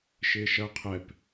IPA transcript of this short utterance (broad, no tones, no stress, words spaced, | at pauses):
ʃɪːʃɐːqʰɛp